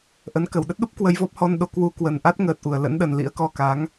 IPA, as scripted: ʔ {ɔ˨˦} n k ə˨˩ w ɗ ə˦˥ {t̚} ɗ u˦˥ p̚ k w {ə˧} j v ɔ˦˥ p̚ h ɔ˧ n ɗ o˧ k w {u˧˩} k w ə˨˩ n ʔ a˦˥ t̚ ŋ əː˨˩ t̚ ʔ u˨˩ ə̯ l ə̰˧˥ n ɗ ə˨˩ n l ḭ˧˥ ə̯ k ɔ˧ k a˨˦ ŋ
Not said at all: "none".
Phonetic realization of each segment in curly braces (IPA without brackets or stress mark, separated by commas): ə˨˦, t̚, ə˧, u˧